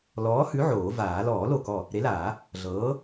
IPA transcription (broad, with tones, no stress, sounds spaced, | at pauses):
l ɔː˨˥ h ʉ˨˥ ʕ oː˨˩˦ v aː˨˩˦ l ɔː˨˩˦ l o˧˩ k ɔ˧˩ | ɾ e˨˥ l aː˨˩˦ | ɮ ɤː˨˥